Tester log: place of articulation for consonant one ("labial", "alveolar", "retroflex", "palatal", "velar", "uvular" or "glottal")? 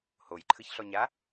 glottal